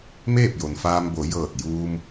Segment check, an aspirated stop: absent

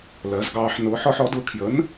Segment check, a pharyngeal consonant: present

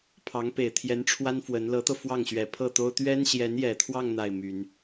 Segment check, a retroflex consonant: present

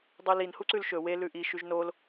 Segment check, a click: present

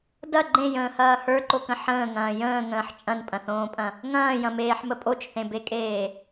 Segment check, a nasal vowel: present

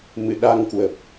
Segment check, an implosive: present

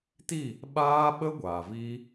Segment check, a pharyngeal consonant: absent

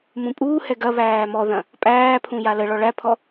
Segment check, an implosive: absent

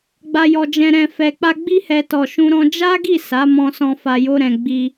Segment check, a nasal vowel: present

